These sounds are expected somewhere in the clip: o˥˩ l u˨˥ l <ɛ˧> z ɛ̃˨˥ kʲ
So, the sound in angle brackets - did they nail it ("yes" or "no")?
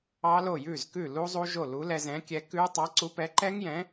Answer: yes